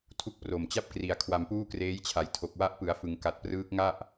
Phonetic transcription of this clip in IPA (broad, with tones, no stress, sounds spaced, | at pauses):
tʰ u˦˥ k̚ p r o˨˩ m t͡ɕ a˥˩ p̚ k r i˩˦ a̯ kʰ w a˧ m p uː˥˩ k r eː˦˥ j t͡ɕʰ a˩˦ j tʰ o˨˩ k̚ w a˦˥ ʔ p ɯ˩˦ a̯ f ɯ˩˦ ŋ k a˨˩ t̚ p r ɯː˦˥ k̚ ŋ a˥˩ ʔ